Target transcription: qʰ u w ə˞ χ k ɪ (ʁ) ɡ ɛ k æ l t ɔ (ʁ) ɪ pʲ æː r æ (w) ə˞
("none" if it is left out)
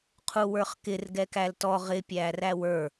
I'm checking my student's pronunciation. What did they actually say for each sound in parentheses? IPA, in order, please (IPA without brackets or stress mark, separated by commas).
r, ʁ, w